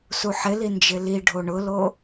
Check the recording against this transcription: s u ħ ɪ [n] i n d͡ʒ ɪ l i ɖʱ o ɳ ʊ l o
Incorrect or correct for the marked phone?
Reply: incorrect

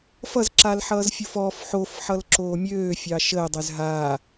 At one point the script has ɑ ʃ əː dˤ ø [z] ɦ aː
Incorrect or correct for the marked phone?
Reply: correct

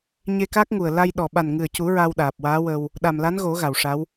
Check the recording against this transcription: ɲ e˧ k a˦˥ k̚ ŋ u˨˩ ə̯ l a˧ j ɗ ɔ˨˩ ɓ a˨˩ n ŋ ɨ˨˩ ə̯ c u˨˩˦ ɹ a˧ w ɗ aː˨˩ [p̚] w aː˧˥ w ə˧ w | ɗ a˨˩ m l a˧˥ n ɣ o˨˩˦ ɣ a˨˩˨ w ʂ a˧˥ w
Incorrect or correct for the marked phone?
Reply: correct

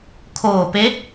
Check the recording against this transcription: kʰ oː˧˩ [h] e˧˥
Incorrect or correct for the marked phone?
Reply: incorrect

